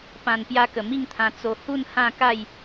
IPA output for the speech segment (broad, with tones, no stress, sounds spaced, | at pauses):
p ã˨˩ n p j a˧ k ə˨˩ m i˥˧ ŋ t̪ʰ ã˧ t͡s o˧ h u˥˧ n h ã˥˧ k a˥˧ j